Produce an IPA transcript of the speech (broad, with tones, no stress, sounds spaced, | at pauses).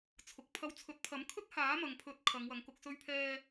t͡sʰ ʊ˨˥ k̚ pʰ ɐ˧ w t͡sʰ ɵ˨˥ t̚ pʰ ɐ˨˥ m kʰ ɵ˥ t̚ h aː˨˥ m ɐ˨ ŋ pʰ ɵ˨˥ t̚ kʰ ɐ˨˧ ŋ w ɐ˨˧ ŋ k ʊ˧ k̚ s ɵ˧ ɥ pʰ ɛː˧